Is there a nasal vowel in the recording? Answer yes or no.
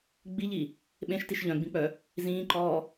yes